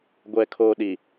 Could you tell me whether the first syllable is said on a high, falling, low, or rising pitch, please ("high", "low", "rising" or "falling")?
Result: low